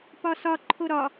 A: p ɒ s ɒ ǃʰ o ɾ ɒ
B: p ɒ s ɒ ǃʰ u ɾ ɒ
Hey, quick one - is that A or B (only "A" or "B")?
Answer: A